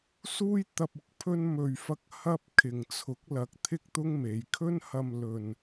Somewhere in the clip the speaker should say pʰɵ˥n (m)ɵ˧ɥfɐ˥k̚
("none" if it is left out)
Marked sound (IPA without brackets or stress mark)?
m